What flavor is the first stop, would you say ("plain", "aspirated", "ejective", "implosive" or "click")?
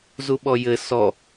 implosive